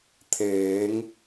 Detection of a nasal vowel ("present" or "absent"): absent